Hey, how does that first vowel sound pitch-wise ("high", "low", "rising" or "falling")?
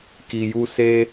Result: low